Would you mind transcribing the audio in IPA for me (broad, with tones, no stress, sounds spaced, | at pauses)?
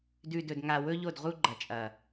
d ʉ˨ d ɵ˨ d ŋ a˨ w ɵ˦ ʎ o˦˨ d ʁ u˦ ɡ͡ǃ ɐ˨ t͡ʃʼ ɐ˨